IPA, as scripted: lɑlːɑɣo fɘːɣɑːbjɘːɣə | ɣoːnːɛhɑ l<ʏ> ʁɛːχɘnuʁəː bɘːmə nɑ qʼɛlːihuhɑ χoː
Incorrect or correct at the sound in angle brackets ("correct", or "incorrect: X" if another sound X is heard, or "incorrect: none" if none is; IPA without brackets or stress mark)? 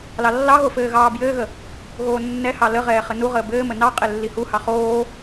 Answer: incorrect: ə